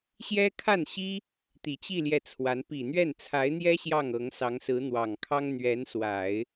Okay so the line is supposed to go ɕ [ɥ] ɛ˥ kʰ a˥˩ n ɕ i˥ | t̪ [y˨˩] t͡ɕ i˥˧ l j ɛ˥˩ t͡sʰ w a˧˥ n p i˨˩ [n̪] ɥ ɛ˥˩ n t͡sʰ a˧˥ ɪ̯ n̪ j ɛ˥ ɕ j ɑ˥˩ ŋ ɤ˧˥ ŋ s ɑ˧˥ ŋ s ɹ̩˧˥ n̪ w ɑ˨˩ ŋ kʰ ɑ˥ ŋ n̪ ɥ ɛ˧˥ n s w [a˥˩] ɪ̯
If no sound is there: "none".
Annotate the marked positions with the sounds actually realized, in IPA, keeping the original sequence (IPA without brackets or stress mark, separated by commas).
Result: j, i˨˩, n̪, a˨˩˦